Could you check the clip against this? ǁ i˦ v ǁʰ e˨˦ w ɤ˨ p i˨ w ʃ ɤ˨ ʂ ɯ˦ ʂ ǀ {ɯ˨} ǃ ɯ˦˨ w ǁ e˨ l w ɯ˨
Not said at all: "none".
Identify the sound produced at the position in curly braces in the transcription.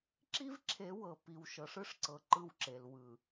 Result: ɤ˨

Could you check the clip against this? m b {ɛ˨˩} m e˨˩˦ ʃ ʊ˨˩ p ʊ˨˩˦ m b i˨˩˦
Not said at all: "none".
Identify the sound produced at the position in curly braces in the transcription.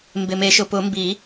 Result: ɪ˨˩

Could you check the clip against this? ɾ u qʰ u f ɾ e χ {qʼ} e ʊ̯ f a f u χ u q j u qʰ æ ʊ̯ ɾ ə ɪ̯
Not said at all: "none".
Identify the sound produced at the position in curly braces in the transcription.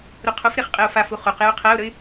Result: qʼ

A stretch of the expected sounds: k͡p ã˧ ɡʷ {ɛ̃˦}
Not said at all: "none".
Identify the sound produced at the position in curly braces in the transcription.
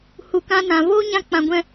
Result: ɛ̃˦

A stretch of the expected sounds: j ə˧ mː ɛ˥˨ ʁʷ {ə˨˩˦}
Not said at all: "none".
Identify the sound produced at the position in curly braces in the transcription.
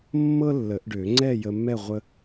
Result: ə˧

